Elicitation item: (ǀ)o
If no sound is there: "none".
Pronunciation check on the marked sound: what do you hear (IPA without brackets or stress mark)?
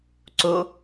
ǀ